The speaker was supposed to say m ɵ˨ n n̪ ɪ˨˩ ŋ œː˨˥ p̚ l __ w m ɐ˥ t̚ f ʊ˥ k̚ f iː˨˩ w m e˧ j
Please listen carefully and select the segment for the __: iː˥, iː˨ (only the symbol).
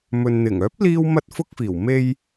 iː˥